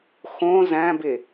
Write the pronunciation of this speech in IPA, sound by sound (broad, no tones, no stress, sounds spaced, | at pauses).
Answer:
x õ z æ̃ b e